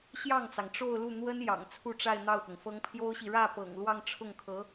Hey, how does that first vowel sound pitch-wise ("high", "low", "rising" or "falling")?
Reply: falling